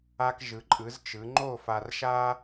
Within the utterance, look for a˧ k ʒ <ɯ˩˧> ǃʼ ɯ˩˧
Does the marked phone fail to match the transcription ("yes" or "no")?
no